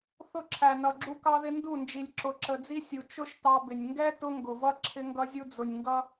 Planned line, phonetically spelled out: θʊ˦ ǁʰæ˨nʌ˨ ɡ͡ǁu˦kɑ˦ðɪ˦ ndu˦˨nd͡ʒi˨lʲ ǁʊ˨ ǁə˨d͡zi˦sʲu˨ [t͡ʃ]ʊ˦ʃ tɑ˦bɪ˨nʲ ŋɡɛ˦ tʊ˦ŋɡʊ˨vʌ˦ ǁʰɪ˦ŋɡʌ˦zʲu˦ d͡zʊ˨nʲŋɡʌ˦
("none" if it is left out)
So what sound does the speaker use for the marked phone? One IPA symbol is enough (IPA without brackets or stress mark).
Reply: t͡ʃ